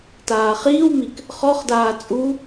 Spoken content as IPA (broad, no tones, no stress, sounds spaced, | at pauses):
t aː χ iː w m i k | χ ɔ χ d aː t͡sʼ u